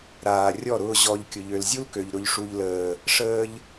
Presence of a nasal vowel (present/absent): absent